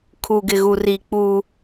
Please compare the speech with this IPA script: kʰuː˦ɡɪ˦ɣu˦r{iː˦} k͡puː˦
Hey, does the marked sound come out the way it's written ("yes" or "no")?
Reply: yes